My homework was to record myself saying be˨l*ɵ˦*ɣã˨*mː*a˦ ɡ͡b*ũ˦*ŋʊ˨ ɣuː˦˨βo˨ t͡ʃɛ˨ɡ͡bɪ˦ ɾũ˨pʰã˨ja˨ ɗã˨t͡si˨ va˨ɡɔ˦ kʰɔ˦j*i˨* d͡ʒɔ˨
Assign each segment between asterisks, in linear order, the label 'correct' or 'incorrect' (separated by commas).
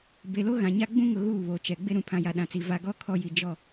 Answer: incorrect, incorrect, correct, correct